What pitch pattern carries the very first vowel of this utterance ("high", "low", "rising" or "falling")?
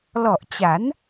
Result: low